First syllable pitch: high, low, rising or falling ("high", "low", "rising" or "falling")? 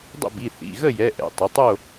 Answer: falling